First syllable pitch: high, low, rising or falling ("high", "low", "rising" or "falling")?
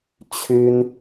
high